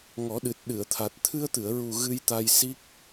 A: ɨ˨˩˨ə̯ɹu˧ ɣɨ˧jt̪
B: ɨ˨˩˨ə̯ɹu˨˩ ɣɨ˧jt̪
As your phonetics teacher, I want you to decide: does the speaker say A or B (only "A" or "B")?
B